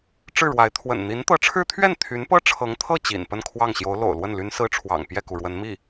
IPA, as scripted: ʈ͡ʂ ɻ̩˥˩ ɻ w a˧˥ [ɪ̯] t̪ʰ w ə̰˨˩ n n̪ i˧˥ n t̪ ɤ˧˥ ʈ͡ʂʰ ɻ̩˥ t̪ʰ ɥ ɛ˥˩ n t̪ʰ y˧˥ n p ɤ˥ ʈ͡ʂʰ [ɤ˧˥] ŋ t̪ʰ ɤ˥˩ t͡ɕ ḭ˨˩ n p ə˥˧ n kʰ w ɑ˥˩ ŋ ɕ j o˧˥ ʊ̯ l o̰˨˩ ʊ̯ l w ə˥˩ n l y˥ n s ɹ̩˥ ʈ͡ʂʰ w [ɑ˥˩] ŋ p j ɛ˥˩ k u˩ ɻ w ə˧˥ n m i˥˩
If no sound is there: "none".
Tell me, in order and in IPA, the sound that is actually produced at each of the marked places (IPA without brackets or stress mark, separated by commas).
ɪ̯, ɤ˧˥, ɑ̰˨˩